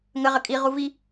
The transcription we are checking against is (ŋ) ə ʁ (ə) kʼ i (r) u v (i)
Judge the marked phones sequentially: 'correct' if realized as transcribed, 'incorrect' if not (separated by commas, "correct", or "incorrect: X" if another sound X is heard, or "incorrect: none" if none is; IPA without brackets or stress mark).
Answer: correct, correct, incorrect: ʁ, correct